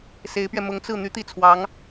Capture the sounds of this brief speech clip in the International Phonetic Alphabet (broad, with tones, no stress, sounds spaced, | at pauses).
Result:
s e˧˥ ɪ̯ p ɥ ɛ˧ m ʊ˧˥ ŋ t͡s ɹ̩˥˩ n̪ y˥ t̪ i˥˩ t͡sʰ w ɑ˧˥ ŋ